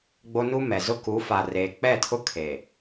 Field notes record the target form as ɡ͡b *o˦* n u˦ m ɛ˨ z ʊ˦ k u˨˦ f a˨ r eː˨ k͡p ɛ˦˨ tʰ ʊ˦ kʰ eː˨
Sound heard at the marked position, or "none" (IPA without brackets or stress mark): o˦